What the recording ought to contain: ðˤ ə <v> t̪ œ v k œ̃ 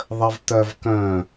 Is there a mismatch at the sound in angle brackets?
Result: no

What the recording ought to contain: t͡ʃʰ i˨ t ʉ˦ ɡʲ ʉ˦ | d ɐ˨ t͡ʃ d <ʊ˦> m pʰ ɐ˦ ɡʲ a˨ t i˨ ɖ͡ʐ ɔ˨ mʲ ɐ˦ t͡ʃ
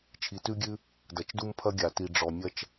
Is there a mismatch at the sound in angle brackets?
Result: yes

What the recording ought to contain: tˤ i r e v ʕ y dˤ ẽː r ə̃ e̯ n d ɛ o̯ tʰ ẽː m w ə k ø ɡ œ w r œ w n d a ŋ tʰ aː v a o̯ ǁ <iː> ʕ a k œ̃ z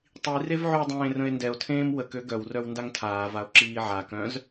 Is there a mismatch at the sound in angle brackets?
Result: no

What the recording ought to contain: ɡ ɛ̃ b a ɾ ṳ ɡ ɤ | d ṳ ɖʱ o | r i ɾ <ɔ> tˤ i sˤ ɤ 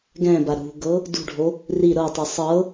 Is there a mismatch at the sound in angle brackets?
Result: yes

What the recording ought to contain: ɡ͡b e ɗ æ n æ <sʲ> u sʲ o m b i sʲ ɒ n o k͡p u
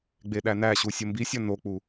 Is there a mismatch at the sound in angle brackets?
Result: yes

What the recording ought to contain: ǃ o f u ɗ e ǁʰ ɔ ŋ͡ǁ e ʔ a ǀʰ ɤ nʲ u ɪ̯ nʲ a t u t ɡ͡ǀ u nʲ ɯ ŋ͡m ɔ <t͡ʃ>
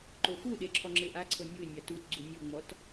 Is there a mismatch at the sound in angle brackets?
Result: yes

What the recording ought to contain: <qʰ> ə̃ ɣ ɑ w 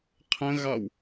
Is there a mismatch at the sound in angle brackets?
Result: no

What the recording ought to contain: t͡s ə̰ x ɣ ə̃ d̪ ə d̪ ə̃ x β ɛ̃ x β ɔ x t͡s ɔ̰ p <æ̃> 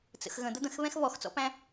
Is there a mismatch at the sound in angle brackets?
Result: no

